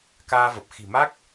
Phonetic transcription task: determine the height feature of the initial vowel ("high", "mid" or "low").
low